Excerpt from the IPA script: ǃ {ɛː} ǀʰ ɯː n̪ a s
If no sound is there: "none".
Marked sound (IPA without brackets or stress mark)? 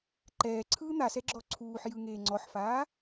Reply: ɛː